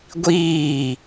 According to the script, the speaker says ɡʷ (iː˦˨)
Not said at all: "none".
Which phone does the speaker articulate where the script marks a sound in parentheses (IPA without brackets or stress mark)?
iː˦˨